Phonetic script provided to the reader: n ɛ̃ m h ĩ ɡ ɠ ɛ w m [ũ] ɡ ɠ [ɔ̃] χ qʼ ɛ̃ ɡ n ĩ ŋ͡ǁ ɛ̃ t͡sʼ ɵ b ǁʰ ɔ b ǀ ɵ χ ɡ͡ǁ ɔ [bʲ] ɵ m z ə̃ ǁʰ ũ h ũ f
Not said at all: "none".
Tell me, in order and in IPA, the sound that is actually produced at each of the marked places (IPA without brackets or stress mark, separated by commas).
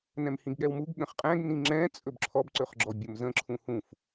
u, ə̃, bʲ